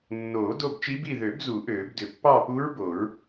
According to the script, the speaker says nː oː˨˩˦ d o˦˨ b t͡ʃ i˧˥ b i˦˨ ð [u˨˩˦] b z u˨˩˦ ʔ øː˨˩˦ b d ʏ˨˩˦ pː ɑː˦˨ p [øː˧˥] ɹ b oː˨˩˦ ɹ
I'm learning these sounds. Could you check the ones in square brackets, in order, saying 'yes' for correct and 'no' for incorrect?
no, no

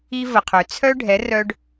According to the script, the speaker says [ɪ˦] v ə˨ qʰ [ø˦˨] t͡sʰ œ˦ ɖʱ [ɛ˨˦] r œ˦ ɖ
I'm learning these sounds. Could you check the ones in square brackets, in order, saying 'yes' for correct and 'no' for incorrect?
no, no, yes

